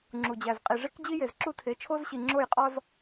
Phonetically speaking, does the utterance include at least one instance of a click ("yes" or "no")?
yes